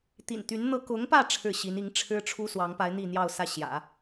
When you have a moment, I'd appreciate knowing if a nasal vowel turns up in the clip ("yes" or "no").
no